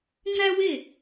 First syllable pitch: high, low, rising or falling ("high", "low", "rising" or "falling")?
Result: high